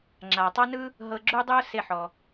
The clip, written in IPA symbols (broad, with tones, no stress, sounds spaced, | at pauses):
ŋ͡ǁ a˩ tˤ a˥ n ɯ˥ | ɦ ɤ˧ ɡ͡ǁ u˥ dˤ ɯ˥ ʊ̯ s e˧ ħ ɔ˩